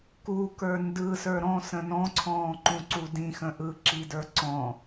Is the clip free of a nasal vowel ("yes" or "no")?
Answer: no